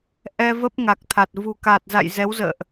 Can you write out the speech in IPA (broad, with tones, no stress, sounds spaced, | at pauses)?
ʔ ɛ˧ v ə˦˥ p̚ ŋ a˨˩ k̚ t̪ʰ a˨˩ t̚ v ṳ˨˩ k a˨˩ t̚ z a̰˧˨ j z ɛ˨˦ w z ə̰ː˧˨ ʔ